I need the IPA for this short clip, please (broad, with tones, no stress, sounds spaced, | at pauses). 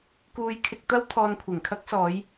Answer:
k uː˧ j kʰ ɪ˧ k̚ t̪ ɐ˥ w t̪ʰ ɔː˧ n kʷʰ ɪ˨˩ ŋ kʰ ɐ˥ k̚ s ɔː˨˧ j